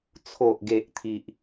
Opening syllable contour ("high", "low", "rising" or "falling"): low